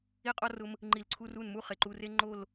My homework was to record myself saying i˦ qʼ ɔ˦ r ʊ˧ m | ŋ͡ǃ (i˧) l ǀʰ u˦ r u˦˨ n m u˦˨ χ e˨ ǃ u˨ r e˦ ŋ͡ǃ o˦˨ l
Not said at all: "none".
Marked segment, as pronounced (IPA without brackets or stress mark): i˧